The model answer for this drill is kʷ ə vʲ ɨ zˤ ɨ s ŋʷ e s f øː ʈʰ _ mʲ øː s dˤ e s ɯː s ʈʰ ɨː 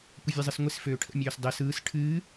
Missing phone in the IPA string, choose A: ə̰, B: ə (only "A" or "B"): A